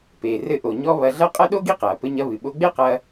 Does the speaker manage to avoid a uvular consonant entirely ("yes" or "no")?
no